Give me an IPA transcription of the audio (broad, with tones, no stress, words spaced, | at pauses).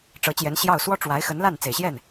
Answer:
ʈ͡ʂɤ˧˥t͡ɕjɛ˧˥n ɕjɑ˥˩ʊ̯ swɔ˥ʈ͡ʂwa˧˥ɪ̯xə˧˥n la˥˩n t͡se˨˩ɪ̯ɕjɛ˥˩n